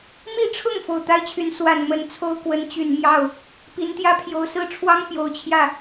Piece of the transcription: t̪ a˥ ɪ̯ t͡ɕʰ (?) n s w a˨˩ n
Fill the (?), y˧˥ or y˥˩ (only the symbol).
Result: y˧˥